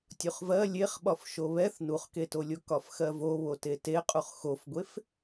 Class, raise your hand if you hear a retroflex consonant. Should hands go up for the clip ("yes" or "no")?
no